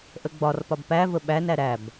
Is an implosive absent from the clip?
no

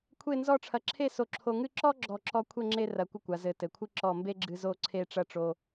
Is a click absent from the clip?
no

